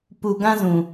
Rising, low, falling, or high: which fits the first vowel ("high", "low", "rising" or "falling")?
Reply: low